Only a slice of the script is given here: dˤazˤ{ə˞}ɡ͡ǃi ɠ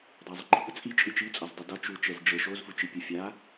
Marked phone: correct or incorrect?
incorrect